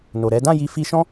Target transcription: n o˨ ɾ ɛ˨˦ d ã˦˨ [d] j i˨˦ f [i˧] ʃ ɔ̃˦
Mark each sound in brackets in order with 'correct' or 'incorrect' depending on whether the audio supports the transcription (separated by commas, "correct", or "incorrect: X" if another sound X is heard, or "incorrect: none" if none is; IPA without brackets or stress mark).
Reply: incorrect: none, correct